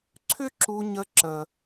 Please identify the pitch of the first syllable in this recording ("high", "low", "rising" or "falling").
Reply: high